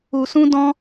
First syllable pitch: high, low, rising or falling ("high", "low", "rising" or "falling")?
low